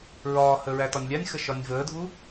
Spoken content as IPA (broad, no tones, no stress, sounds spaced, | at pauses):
ɹ ɒː h ə ɹ æ t ɒ nʲ lʲ a nʲ x ə ʃ ɒ nʲ v əː dʱ u